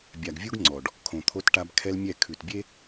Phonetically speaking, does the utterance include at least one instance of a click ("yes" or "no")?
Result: yes